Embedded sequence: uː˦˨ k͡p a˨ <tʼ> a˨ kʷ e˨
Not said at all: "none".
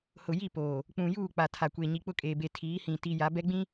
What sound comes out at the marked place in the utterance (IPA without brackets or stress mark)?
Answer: tʰ